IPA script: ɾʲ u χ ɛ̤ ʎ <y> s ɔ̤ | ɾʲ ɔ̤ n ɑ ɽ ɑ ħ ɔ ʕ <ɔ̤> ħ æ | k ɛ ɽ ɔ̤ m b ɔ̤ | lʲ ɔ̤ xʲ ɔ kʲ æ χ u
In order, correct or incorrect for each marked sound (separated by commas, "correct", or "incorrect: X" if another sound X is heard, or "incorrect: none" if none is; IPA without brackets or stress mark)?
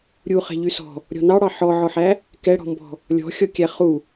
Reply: correct, incorrect: ɔ